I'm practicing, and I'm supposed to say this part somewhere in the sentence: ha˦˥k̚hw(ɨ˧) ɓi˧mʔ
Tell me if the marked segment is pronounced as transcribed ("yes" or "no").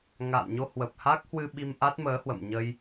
yes